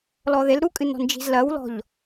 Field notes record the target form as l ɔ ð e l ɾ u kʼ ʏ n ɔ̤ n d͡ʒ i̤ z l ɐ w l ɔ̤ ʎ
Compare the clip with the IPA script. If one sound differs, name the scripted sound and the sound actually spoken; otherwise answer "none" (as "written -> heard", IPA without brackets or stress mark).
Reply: ʏ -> ɨ